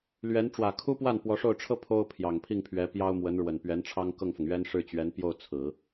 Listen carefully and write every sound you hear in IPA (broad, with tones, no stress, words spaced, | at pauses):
lɥɛ˧˥n ʈ͡ʂwä˨˩kʰu˥pwa˥˩n pwɔ˧˥ʂo˥˩ʊ̯ʈ͡ʂʰɤ˥ pʰo˥ʊ̯ pʰjɑ˨˩ŋpʰi˥˩ŋpʰɥɛ˧˥ pjɑ˥ʊ̯mwə˧˥n ɻwə˨˩npɥɛ˧˥nʈ͡ʂʰɑ˥ŋ kɤ˥˩ŋfʊ˩ŋɥɛ˥n ʂɻ̩˥˩t͡ɕɥɛ˧˥npjo˥˩ʊ̯ t͡sʰɹ̩˨˩˦